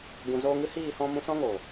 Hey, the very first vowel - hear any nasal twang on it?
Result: yes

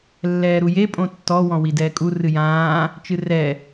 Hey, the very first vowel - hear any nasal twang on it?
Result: no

